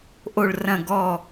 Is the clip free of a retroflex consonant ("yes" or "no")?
no